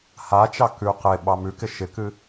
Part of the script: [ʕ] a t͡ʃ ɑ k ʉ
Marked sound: incorrect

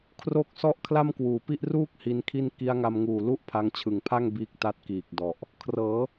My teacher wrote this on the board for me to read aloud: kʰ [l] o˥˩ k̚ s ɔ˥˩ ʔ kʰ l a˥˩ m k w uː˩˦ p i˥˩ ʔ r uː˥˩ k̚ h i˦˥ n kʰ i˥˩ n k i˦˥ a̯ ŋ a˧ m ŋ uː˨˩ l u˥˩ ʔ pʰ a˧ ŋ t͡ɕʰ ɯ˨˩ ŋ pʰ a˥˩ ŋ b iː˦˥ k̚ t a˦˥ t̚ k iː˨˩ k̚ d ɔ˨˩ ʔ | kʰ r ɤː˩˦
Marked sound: incorrect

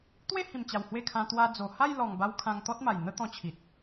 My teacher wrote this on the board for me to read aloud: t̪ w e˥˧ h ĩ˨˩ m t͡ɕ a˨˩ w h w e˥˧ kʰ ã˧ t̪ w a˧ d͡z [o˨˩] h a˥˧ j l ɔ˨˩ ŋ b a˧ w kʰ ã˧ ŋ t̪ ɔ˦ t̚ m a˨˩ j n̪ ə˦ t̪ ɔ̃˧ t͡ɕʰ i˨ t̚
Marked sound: correct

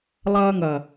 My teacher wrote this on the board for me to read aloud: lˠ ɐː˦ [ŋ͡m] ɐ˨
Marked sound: incorrect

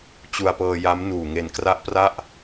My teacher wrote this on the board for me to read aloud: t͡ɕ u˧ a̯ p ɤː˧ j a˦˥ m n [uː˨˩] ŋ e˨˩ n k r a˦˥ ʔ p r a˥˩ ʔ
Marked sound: correct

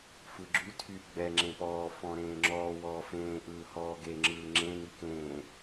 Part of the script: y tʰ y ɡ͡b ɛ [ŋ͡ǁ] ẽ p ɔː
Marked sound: correct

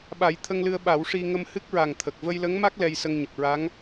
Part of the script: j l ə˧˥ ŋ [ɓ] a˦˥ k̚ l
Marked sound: incorrect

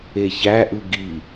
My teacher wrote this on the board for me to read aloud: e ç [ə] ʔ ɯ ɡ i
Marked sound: incorrect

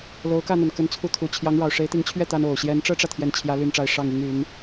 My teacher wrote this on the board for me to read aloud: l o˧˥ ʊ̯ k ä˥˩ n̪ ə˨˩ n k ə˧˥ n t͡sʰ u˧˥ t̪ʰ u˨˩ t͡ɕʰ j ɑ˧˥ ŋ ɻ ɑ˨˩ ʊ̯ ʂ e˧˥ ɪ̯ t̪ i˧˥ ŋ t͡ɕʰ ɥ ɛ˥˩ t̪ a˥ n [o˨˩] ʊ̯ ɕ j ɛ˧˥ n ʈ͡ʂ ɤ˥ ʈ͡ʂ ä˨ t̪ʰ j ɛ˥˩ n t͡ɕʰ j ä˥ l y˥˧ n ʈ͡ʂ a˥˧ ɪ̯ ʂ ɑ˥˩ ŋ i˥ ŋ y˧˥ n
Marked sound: correct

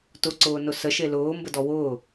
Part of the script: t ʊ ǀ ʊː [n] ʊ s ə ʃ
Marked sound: correct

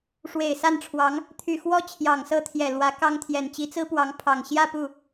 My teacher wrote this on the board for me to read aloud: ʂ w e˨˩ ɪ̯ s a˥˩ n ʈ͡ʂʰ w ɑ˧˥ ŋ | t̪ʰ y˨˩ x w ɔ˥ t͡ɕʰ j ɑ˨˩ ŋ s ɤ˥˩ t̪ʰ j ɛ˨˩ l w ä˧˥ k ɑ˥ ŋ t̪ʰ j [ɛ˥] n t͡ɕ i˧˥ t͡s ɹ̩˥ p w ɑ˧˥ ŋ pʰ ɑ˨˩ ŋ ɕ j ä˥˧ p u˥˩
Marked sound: incorrect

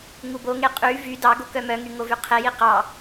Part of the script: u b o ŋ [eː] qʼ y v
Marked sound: incorrect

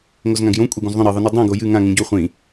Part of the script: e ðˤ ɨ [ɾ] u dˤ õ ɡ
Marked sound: incorrect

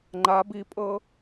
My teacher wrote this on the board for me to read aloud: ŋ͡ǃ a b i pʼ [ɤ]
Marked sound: correct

